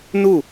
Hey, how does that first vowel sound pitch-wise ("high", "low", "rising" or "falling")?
falling